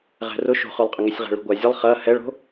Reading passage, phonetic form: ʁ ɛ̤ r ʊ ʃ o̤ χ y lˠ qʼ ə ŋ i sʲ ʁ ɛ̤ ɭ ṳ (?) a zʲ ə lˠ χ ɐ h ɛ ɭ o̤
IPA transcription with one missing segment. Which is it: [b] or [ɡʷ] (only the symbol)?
ɡʷ